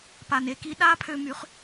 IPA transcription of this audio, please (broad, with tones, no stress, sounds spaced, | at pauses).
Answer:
p a˨ n e˧ k i˧ ɗ a˦ pʰ ø˧ m y˨˦ χ